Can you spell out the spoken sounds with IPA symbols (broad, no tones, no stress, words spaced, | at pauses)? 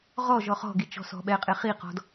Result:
ʁɔʒɔ χɔ̤ɡi t͡ʃɔ̤sɔ̤ɓɛqʼe χiqɔ̤d